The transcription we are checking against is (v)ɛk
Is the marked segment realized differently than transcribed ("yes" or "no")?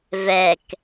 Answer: no